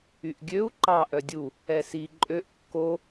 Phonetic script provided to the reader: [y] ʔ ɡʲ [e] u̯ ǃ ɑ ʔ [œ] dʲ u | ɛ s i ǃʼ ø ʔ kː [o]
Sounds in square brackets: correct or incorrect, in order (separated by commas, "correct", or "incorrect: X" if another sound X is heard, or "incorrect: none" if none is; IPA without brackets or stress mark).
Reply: correct, incorrect: ø, correct, correct